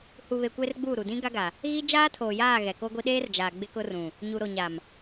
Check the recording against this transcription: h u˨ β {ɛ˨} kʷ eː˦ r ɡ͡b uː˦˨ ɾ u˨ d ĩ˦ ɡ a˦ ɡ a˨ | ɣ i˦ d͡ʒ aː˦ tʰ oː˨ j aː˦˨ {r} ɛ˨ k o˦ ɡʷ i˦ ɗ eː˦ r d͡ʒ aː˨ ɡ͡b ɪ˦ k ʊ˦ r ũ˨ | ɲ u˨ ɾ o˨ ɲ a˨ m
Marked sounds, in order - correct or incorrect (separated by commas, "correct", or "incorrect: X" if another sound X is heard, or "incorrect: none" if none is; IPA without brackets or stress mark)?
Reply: incorrect: e˨, incorrect: ɣ